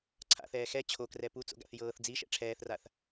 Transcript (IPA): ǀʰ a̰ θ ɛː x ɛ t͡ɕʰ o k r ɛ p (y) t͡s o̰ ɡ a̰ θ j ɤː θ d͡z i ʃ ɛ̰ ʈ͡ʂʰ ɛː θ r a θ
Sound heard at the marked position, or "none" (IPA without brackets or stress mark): u